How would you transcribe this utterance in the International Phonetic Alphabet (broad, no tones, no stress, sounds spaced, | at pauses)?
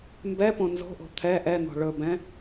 m b ɛ p õ n z o̤ ʔ o̤ t̪ʰ ɛ ʔ ɛ n̪ o̤ ɭ ɵ b ɛ̃